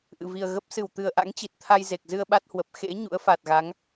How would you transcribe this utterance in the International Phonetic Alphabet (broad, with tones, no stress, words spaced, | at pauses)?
ʔɨ̰˧˨vi˨˩ə̯ɣə˦˥p̚ sɨ˧˩wt̪ɨ˨˩ə̯ʔa̰˧˥ŋ t͡ɕi˨˩t̚t̪ʰa˧j ze˨˩k̚zɨ˧ə̯ ɓa˦˥t̚hwə˨˩p̚ xḛ˧˥ ɲṵ˧˥ə̯fa˨˩t̚ɣa˨˦ŋ